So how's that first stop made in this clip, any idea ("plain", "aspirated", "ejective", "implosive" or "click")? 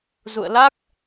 plain